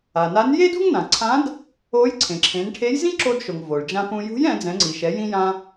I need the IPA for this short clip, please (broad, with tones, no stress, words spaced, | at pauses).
a˩na˧˥n je˥dṳ˥ŋnã˩ ǀʰã˧˥d | o˧˥j ǀʰẽ˩ǁʰẽ˩˧nʈʰe˧˥jzĩ˥ ǁo˧dʃo˩ŋ vo˩ɭd͡ʒã˧pũ˧ jṳ˧˥j ɛ̃˩˧d͡zɛ̃˩˧ ŋ͡ǀi˩ʃɛ˩˧jĩ˧jã˧